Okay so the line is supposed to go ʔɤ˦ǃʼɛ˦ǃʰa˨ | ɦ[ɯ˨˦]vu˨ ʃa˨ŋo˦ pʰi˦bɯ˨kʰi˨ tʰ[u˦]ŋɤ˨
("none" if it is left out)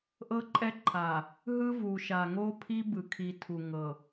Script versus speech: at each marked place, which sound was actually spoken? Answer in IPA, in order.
ɯ˦, u˨

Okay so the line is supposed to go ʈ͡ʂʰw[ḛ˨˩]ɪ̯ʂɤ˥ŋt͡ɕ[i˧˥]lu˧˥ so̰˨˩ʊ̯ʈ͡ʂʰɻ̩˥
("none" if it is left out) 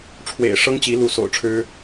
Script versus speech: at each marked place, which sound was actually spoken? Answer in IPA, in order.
ḛ˨˩, i˧˥

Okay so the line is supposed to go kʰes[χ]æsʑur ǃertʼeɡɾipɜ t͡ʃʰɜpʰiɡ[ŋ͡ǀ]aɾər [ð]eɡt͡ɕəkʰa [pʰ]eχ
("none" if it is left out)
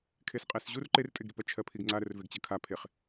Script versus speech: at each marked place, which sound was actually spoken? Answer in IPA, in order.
qʼ, ŋ͡ǀ, v, pʰ

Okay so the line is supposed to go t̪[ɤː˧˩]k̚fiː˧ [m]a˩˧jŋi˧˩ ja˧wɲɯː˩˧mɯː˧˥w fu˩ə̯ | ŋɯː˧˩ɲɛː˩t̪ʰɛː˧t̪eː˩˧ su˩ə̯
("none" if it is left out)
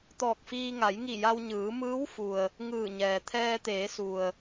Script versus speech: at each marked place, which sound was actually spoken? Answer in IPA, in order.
ɔː˧˩, ŋ

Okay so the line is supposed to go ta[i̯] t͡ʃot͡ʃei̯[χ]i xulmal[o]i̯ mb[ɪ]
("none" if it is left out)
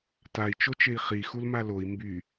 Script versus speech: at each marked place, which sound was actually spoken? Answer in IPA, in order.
i̯, χ, o, y

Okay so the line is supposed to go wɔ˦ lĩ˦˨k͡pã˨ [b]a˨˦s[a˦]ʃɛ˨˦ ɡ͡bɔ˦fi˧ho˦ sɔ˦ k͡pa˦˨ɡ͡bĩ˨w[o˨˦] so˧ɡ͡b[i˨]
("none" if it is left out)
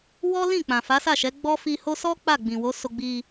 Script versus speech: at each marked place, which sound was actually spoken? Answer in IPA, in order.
f, a˦˨, o˨˦, i˧

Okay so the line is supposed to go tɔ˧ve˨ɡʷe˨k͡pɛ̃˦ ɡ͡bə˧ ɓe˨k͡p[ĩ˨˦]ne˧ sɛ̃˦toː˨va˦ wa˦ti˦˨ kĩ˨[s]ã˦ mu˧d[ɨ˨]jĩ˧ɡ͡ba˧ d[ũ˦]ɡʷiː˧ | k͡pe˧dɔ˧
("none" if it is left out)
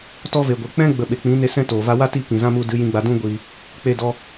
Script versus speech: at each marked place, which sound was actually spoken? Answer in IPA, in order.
ĩ˨˦, z, ɨ˨˦, ũ˦

